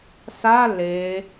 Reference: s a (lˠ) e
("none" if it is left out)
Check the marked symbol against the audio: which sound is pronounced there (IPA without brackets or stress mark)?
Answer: l